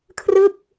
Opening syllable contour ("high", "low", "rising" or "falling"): falling